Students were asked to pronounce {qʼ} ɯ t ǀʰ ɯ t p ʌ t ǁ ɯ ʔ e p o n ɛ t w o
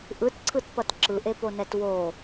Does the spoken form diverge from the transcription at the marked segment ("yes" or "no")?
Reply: yes